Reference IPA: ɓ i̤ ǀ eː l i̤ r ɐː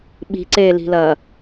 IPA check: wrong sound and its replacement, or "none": r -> l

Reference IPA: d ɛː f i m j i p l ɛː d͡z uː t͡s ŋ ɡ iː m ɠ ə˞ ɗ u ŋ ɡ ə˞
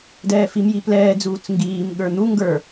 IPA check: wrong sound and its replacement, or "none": ɗ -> n̪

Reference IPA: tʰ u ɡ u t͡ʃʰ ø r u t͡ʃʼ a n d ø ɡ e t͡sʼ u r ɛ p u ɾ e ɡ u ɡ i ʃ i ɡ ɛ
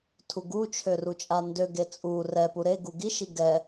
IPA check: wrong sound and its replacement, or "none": none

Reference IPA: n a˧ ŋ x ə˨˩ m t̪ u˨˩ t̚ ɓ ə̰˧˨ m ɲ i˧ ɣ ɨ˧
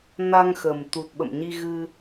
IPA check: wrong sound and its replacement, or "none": none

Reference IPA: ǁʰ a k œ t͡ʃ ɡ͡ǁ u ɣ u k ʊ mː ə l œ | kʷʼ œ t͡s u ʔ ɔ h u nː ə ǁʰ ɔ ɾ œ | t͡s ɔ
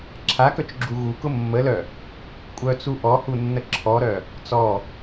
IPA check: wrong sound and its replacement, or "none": none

